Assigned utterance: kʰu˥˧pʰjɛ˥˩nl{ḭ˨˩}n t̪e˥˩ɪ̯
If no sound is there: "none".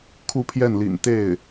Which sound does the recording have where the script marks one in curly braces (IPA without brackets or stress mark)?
ḭ˨˩